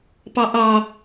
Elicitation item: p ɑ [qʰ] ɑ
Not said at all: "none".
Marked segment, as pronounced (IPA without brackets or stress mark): ʔ